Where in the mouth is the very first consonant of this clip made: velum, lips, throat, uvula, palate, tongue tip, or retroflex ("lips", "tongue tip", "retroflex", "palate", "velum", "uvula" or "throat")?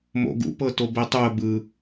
lips